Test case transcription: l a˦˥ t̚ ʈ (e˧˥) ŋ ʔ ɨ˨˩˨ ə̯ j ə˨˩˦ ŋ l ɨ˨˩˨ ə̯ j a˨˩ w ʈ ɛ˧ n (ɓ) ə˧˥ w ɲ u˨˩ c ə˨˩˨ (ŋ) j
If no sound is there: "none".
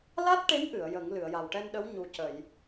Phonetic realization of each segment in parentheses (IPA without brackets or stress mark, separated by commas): e˧˥, ɗ, none